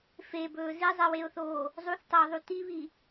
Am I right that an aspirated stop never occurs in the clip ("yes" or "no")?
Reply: yes